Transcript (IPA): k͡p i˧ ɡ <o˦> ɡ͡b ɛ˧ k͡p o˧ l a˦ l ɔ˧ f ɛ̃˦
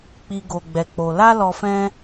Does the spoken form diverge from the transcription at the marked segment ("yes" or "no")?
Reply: yes